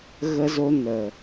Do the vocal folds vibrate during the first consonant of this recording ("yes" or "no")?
yes